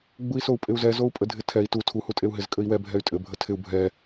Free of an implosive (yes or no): yes